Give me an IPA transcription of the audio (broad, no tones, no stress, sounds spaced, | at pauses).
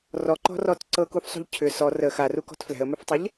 r ɔ ǃ ɔ̤ r ɔ t ǀ ɤ k u f sˤ ṳ ʎ cʰ ʏ s ɔ r ə x a r u k ɔ̤ t f l ɛ̤ ə̯ m ʏ f tˤ ə ʎ